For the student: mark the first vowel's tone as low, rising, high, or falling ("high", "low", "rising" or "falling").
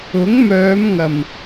rising